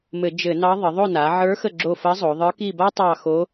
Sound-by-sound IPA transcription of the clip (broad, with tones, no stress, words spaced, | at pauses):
mɘ˧˩˧d͡ʒɘ˧˩˧nɑ˧˥ ðˤə˩˧ðˤo˦˨na˩˧ ʕə˞˧˥xə˦˨ ɡ͡ǁo˦˨ fə˧˥zˤo˩˧ðˤə˞˧˥ ki˦˨ba˥ tˤɑ˦˨xo˧˥